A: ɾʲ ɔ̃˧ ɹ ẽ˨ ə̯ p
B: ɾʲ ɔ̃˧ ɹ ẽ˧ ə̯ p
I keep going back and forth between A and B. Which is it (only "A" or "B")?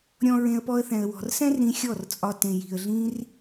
B